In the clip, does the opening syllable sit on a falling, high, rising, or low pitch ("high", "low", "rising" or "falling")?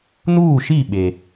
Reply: falling